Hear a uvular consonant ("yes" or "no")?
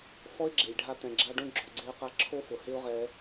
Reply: yes